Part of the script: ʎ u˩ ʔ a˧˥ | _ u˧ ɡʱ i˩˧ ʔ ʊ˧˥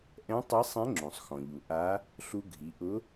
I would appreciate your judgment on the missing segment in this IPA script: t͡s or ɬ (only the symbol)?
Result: ɬ